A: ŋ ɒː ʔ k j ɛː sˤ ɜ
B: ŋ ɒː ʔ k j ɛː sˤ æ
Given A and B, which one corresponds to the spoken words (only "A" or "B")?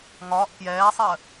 A